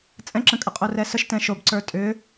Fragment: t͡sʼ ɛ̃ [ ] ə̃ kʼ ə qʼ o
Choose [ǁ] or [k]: ǁ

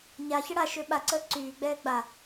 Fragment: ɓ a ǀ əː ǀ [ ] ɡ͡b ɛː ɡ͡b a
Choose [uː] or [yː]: yː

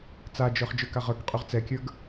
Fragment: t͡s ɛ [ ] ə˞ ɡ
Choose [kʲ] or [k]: kʲ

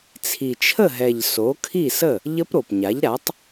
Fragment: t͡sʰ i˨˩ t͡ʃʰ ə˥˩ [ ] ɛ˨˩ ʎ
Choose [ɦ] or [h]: ɦ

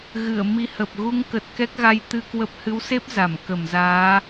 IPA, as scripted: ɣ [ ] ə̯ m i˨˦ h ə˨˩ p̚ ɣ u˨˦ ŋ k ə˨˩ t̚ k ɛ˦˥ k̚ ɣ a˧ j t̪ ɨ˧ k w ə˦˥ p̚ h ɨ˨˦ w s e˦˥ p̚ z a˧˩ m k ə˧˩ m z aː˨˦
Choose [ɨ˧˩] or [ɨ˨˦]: ɨ˧˩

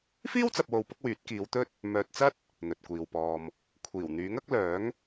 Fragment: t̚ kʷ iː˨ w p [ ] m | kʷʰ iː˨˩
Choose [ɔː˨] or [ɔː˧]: ɔː˧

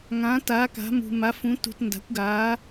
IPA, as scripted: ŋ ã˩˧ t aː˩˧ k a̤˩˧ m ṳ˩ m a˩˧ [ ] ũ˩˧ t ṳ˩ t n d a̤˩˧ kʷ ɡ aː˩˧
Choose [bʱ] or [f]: f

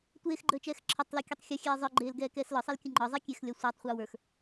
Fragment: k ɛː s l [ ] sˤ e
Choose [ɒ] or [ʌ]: ɒ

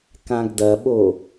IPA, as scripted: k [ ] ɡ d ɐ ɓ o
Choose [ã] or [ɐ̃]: ã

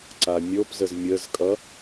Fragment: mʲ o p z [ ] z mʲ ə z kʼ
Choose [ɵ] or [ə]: ə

